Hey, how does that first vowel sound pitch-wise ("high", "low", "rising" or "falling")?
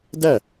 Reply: falling